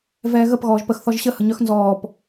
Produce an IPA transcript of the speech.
v ɛː ɣ ə p ɣ ɔː ʒ p ə x θ ɔ ʒ ɕ ə h ə ɲ œ x n z ɔː p

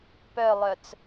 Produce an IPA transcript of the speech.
p œ lˠ œ t͡s

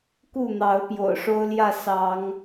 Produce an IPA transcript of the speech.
k u˥˨ n̪ ɑ˨˦ ʊ̯ p j o̰˨˩ ʊ̯ ʂ o˦ ʊ̯ l j ä˥˨ s ɑ˨˦ ŋ

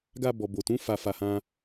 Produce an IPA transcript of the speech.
ɡ a˧ b ɔ˨ b o˨ t ũ˨˦ f a˧ f a˧ h ã˦

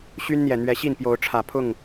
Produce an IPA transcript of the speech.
ɕ y˦ n n̪ j ɛ˨˩ n̪ ɥ ɛ˨˦ ɕ i˥˨ n p j o˨˦ ʊ̯ ʈ͡ʂʰ ä˨˩ pʰ ʊ˥˨ ŋ

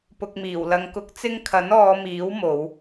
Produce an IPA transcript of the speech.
p ʊ˨ k̚ m iː˨˩ w l ɐ˨ ŋ k ʊ˨˥ k̚ t͡s ɪ˧ ŋ kʰ ɐ˨˥ n ɔː˨˧ m iː˨˥ w m o˨˧ w

